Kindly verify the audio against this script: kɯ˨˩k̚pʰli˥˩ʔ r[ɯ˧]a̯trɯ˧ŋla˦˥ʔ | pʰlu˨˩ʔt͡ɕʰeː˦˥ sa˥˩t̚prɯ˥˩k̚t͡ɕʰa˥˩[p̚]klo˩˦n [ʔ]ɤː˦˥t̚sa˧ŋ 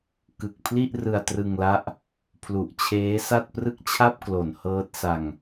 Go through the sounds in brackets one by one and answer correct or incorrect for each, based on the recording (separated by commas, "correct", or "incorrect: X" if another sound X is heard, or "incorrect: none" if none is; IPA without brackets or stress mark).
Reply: correct, correct, incorrect: h